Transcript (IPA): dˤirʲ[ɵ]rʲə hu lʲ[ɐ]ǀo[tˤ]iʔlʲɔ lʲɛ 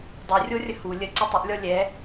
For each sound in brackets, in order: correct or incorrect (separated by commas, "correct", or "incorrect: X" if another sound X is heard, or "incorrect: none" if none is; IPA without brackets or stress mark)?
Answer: incorrect: o, incorrect: ə, correct